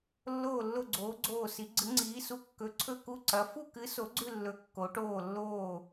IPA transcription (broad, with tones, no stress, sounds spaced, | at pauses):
lː oː˥˧ lː o˥˧ ɡ͡ǀ oː˧˥ ɡ͡ǀ oː˥˧ s i˧˥ ɡ͡ǀ ɨ˧˥ ŋ͡ǀ iː˧˥ s u˧˥ kː ɵ˧˥ ǀʰ ɵ˥˧ k u˥˧ ǀ ɐ˧˥ f u˥˧ k ɨ˧˥ s o˧˥ ɡ͡ǀ ʉ˥˧ lː ɵ˧˥ kː o˧˥ ʈ oː˥˧ lː oː˥˧